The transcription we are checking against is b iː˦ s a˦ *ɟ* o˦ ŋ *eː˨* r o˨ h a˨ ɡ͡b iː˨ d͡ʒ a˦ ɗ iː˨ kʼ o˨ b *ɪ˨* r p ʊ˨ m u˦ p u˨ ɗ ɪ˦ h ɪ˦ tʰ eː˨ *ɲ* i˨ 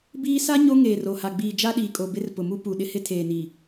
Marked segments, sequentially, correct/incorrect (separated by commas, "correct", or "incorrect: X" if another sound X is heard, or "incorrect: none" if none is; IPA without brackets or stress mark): incorrect: ɲ, correct, incorrect: ɪ˦, incorrect: n